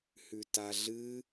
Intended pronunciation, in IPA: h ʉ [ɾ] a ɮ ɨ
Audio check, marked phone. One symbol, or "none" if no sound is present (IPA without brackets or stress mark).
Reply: t